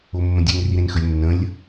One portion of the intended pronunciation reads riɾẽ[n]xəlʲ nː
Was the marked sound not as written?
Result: no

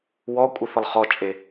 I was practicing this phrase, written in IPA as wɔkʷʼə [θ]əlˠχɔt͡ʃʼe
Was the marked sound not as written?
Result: no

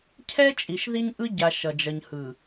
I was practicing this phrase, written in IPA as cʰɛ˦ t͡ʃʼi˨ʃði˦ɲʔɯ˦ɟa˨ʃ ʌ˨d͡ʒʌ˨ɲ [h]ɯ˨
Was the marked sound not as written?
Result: no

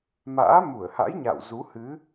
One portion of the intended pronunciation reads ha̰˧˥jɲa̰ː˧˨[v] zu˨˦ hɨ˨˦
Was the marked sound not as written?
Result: yes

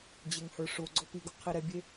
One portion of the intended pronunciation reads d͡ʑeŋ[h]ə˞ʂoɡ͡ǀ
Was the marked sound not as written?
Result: no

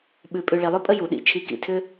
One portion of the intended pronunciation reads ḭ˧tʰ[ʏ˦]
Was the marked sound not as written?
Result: no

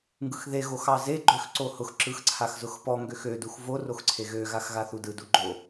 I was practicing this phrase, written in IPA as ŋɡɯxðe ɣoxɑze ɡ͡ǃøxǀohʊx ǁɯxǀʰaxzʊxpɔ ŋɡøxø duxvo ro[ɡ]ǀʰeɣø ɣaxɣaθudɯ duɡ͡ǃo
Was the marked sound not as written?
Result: yes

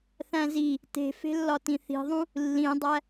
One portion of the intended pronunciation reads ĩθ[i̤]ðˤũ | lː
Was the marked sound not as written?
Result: no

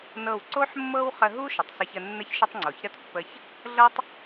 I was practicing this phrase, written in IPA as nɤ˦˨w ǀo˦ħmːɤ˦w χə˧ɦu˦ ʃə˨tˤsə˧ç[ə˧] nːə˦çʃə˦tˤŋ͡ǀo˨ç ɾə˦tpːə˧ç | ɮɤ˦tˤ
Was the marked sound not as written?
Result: no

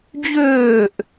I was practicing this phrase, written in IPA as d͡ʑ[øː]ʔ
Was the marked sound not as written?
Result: no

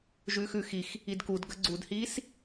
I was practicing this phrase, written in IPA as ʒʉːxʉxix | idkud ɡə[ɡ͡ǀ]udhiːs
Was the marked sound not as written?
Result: no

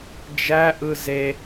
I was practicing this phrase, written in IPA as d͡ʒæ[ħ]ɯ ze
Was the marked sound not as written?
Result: yes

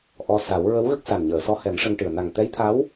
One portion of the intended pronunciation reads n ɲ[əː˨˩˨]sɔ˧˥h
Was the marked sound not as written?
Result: no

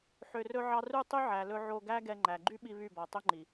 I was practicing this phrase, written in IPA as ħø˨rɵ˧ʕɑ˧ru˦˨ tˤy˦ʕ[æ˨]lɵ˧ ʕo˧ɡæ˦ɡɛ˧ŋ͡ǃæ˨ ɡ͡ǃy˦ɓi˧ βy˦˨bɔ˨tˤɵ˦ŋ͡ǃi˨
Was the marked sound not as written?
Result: no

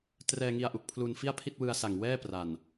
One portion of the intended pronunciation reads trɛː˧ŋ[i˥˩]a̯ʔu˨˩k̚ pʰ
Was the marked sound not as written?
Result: yes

